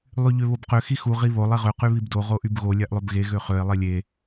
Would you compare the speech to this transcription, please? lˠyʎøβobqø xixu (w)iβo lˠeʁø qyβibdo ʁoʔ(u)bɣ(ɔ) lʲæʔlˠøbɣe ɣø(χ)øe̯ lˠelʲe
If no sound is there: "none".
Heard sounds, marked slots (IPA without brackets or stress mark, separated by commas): ʁ, y, o, χ